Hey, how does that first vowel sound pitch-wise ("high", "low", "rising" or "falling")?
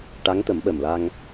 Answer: rising